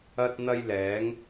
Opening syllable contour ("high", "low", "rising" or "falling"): high